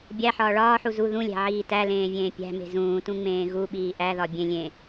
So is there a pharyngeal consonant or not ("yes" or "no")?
yes